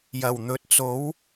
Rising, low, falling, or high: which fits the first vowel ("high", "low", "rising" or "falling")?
low